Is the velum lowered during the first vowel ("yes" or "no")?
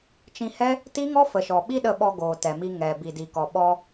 yes